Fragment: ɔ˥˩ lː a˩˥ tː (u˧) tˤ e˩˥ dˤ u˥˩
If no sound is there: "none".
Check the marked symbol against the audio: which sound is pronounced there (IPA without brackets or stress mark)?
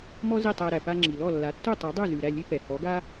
u˥˩